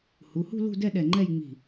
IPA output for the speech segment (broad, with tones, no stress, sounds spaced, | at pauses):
h u˩˧˩ h ṳ˥˧ l ṳ˥˧ d ɛ˥˧ ɗ ɛ˧˩ ŋ͡ǃ ɛ˥˧ j ŋ͡m i̤˧˩